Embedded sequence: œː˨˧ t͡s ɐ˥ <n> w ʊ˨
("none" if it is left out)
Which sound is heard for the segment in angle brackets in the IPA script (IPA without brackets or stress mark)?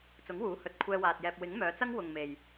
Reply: ŋ